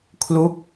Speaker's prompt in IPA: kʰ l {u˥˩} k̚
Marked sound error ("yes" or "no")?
no